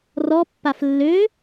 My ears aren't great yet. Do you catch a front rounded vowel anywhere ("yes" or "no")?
yes